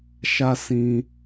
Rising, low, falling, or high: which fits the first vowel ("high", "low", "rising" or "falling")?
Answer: high